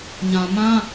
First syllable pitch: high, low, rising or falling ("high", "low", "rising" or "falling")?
low